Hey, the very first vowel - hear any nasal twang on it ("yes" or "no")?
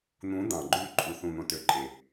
yes